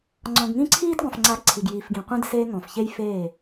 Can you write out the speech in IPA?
ŋ͡ǀ ɔ̃˨ ɡ ŋ ĩ˦ ǀʰ iː˦ d ɡ ɔ̃˨ f ŋ͡ǀ a˨˦ ɡ ǀʰ i˨ ɡ j iː˨ f ɡ ĩ˨ qʷ ĩ˦ d s eː˦ ŋ ɔ̃˨ f ç e˦ j f eː˦˨

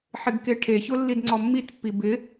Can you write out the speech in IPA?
ħ ɪ ɡ k e ʈʰ e ç ʊ lː i d ŋ͡ǀ ɔ mː i t pː i b ɪ

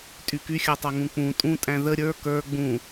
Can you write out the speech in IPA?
tʼ y k y xʲ a tˤ a ŋ ũ k͡p ũ tʼ ũ tʼ æ̃ ð ə ɾʲ ə˞ k ə˞ ɡ͡b ũ

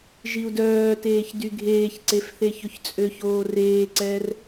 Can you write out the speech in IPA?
ʒ i u̯ d œː t eː ç d y ɡʱ eː ç ǀ e f θ e ç ɵ ç t͡sʼ ø ç oː r eː ǀ ɛː r

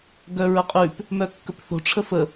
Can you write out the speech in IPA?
ɡ œ ɹ ə qʼ ʉ p | m œ kː ə p θ o̤ ʈ͡ʂʰ ə f ə

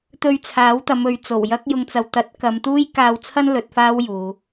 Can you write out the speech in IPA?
t̪ ɵ˧ ɥ t͡sʰ aː˨˥ w t̪ ɐ˨˧ m ɵ˨ ɥ t͡s o˨˩ w j ɐ˥ k̚ j ʊ˧ ŋ t͡s ɐ˨ w t̪ ɐ˨˥ t̚ k ɐ˨˧ m t̪ uː˥ j k aː˧ w t͡sʰ ɐ˥ n l ɵ˨˥ t̚ f aː˥ w j uː˨˧

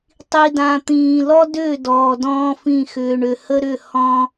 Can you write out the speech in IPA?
tˤ i˨ d ã˨ t̪ ĩː˨ l ɔ˦ d ʏː˦˨ d ɔː˨ d ɔ̃ː˦ f ĩ˦˨ x ʏː˨ ɳ ʏ˨ h ə˦ ɾ ʏ˦˨ h ɔ̃˦

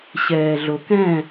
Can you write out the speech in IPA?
ɕ ɛː ɮ o k ɛ̃

